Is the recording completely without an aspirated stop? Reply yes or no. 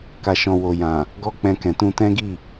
yes